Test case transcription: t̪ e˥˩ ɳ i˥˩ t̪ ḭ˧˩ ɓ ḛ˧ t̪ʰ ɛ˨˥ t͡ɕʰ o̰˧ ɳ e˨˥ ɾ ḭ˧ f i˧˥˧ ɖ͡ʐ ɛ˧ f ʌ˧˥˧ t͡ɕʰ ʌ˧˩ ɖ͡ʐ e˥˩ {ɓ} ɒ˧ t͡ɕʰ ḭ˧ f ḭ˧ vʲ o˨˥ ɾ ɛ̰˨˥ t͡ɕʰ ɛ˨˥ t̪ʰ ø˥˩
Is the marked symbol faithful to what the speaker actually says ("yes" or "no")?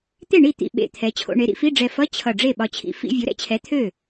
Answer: yes